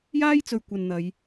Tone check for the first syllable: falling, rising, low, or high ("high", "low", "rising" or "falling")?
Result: high